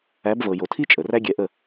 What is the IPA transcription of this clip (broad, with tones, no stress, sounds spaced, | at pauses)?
æ˨˦ b v ɤ˨ j o˨ tʰ i˦ t͡ʃʼ ə˨ r æ˦ ɡʲ ɛ˧ ʔ ə˦˨